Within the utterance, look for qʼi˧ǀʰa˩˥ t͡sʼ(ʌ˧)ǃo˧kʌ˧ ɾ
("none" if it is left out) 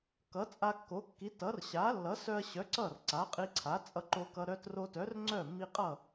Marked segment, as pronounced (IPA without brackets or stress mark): ʌ˧